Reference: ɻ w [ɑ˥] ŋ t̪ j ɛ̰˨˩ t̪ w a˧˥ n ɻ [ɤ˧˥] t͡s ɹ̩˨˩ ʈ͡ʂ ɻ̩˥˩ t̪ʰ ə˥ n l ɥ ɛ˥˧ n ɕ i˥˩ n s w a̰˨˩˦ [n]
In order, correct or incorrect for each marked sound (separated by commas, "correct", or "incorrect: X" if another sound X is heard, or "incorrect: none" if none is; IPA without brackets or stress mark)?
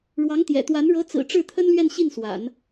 incorrect: ɑ˧˥, correct, correct